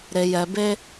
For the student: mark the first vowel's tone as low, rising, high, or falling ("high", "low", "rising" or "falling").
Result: low